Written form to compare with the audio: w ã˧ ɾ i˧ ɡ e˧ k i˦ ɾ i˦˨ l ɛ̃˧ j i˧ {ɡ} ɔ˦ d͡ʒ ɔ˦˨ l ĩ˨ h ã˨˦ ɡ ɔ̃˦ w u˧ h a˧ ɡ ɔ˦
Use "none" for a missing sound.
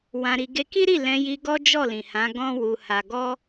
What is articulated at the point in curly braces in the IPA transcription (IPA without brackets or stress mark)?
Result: ɡ